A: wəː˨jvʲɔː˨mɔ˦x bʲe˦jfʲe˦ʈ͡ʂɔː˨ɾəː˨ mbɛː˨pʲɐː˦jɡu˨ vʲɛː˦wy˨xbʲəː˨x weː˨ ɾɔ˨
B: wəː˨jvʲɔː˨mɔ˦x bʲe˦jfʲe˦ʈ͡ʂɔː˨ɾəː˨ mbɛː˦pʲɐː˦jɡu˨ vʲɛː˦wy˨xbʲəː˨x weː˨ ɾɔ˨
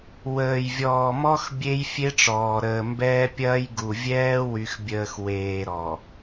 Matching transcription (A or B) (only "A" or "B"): B